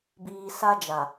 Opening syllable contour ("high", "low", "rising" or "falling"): low